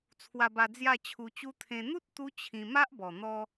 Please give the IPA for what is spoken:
t͡sʰwa˧ba˧ d͡zja˥˧t͡ɕʰu˧t͡ɕu˦ t̪ʰẽ˧ n̪u˦t̚ t̪u˦ t͡ɕʰĩ˧ ma˦ʔbɔ˨˩ n̪ɔ˧

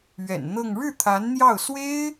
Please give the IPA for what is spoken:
ɥɛ̰˨˩nn̪ɤ˥˧ŋ ɻɻ̩˥˩ t̪ʰa˧˥nn̪jɑ˥˩ʊ̯ swe˥ɪ̯

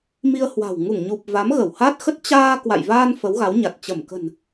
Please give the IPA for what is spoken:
mi˧ə̯hwa̤˨˩w ŋu˧˩ŋɲu˨˩p̚ va˨˦mɣə˧˩whaː˦˥t̚xə˦˥t̚ t͡ɕaː˧ kwa̰˧˨jvaː˧n fə˨˦wɣa˨˦wɲa˨˩t̚ t͡ɕə˧˩mkə̤˨˩n

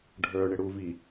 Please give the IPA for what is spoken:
ɖʱə˞ɳɪ ɽuvi

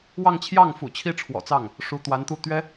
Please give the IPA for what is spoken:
wɑ˥˧ŋt͡ɕʰjɑ˥˩ŋfṵ˨˩ t͡ɕʰi˥ʈ͡ʂʰwɔ̰˨˩t͡sɑ˥˩ŋ | ʂu˧˥t̪wa˧˥nt̪u˥˩ t̪ɥɛ˥

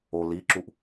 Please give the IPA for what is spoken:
o liǁuʔ

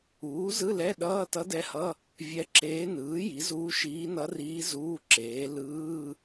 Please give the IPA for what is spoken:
uː˩˥zɯ˧˥˧lɛ˧˥˧ ɗʌː˧˥˧tʌ˧˥dɛ˧˥hʌ˧˥˧ | vʲɛ˧˥ǁeː˧˥ nɯː˩˥ ji˩˥zuː˧˥ʃiː˧˥ nʌ˧˥riː˧˥ zuː˧˥˧ǁeː˩˥ lɯː˧˥˧

